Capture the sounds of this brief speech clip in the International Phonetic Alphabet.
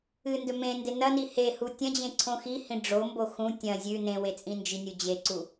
ɨ n d ɵ m ẽ n d e n ɐ n i h e h u tʲ ɐ̃ d͡ʑ ẽ ǀʰ õ x i h ĩ ɖ͡ʐ o m b o x ũ tʲ ɐ̃ zʲ ʉ n ẽ w e t͡sʼ ĩ n d͡ʒ i nʲ u d͡ʑ e ǀ u

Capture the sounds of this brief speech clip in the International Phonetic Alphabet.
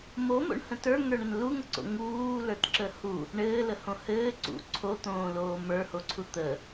m o m o̰ ɳ h ə̃ t ə˞ ŋ ə˞ ɳ ə n l u ŋ ə ǀ o̰ ŋ uː l ə˞ t ǁ ə h u | ɳ ɘː l ə h õ h ɘː ǀ ṵ ǀʰ o t̪ õː l oː m ə˞ h o ǀʰ u t̪ ə

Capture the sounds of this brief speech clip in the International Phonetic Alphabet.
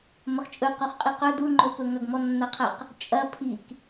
m ɐ χ t͡ʃʼ ɵ q o χ qʼ i q ɵ d u ŋ͡ǃ o p ɵ ŋ ɐ ɡ m ɔ nː a qʰ ɐ q | t͡ʃʼ ɐ pʰ i k

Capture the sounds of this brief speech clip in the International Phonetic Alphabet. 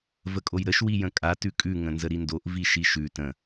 v ə kʼ o j ɾ ə ʃ w i j ə̃ kʼ a t ʉ kʼ ʉ ŋ ə̃ n z ə ɾ i n d o ʔ v i ʃ i ʃ ʉ t ə̃

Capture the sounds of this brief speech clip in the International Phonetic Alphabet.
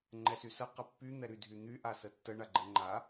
ŋ͡ǃ ɛ s y s ə q ə pː y n̪ ɛ ɾ y dʱ y n̪ y ʔ a s ə tː ə ɳ a ɡ͡ǃ ɛ ŋ͡ǃ a

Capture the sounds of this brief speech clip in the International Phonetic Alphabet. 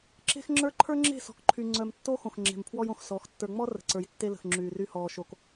ǁ e̤˦ x ŋ͡ǁ ə˞˦ ǃʰ ə˞˦ ŋ͡ǁ e̤˦˨ s ɔ̤˨ k ǃʰ y˨ ŋ͡ǀ œ˨ m tː o˦ x õ˨ x ŋ͡ǁ e̤˨ m pʰ w ɔ˦ j õ˨ x s ɔ˨˦ x tː ə˞˨ ŋ͡m ɔ˦ r ə̤˨ ǀ ə˞˨ j tː e˦ l ə̤˨ x ŋ͡ǁ yː˨ r y˦ h ɔː˨ ʃ o˨ k

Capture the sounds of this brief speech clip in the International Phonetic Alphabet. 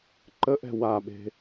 ǃ ə ʔ ɛ̤ w a ɓ e̤

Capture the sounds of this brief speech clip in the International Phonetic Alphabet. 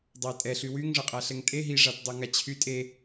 dˤ a tʼ ɛ ɬ y w y ŋ ʐ ə qʼ a ɬ ɛ ŋ tʼ e ɦ i ʐ a t dˤ o ŋ a t͡ɕʰ y tʼ e

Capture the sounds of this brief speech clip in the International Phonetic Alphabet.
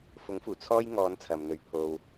f ʊ˨˥ ŋ f uː˨˩ t͡sʰ ɔː˥ j ŋ ɔː˨˧ n t͡sʰ ɐ˨ m n̪ ɵ˧ ɥ pʰ o˧ w

